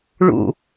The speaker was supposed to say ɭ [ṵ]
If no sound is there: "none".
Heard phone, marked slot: ṵ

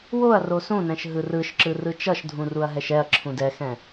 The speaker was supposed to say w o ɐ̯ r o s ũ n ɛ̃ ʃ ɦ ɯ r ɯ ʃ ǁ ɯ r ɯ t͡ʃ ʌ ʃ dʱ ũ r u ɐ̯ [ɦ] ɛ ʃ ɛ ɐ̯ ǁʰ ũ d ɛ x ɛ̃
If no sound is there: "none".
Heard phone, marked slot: ɦ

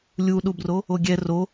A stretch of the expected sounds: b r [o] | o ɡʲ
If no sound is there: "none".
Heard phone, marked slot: o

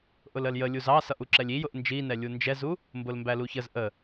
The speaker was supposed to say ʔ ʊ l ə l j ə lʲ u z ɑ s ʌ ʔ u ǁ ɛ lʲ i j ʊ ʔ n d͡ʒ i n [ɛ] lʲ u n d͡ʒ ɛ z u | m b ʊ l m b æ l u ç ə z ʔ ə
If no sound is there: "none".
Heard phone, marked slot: ɛ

